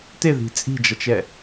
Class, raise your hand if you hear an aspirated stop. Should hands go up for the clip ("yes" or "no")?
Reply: no